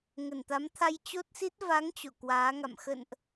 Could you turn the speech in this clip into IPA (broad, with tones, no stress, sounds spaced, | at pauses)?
ŋ ə˧˩ n t̪ a˨˦ m t̪ʰ a˧ j t͡ɕ o˦˥ t̚ s i˦˥ t̚ v a˨˦ ŋ t͡ɕ o̰˧˨ k w aː˨˦ ŋ a̰˧˨ m x ə̰˧˨ n ʔ